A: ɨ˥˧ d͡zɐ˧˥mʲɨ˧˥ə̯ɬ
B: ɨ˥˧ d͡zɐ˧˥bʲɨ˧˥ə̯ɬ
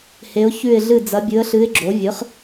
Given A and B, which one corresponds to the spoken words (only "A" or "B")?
B